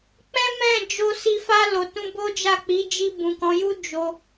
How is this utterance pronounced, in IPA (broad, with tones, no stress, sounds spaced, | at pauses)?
k͡p ɛ̃˦ m ɛ̃˦˨ d͡ʒ o˧ s i˧ f a˧ l o˨ t ũ˧ b o˦ d͡ʒ a˦˨ k͡p i˨˦ d͡ʒ i˧ b ũ˨ k ɔ̃˨˦ j u˦ d͡ʒ o˧